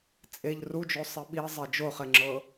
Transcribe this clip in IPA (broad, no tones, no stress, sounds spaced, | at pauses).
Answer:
t͡sʼ e ʎ r u d͡ʒ o sˤ i ɓ i zˤ e d͡ʒ o χ ɛ ŋ͡ǁ ɤ